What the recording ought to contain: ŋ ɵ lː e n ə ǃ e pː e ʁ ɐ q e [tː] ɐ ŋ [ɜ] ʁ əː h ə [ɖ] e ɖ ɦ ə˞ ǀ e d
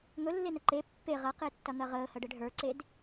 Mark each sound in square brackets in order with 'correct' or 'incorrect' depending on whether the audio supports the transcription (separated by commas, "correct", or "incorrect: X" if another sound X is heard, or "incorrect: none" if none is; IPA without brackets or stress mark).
correct, correct, correct